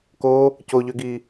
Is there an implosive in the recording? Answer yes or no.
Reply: no